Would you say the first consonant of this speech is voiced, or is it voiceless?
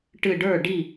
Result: voiceless